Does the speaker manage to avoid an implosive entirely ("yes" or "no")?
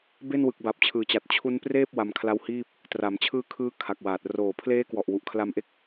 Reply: yes